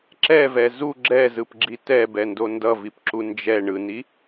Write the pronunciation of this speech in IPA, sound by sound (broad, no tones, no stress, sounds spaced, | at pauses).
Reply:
ǁ ɛ v ɛ z u ɡ͡ǁ ɛ z ɯ p ɡ͡ǁ i t ɛ b ɛ n d o n d ʌ v i p ǁ u n d͡ʒ ɛ ɳ ɯ n i